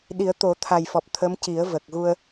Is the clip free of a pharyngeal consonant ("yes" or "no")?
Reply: yes